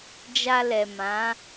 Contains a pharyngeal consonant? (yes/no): no